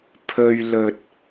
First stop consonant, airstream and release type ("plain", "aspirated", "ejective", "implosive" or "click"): aspirated